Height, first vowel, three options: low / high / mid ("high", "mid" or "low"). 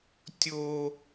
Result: mid